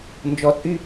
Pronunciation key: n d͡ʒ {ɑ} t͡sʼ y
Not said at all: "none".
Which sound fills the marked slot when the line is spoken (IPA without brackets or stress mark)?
ɔ